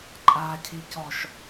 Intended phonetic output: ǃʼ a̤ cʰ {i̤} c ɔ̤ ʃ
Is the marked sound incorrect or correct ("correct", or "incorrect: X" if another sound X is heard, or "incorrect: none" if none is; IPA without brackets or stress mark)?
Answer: correct